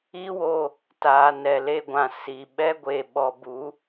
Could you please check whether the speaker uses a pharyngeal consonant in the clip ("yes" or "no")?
no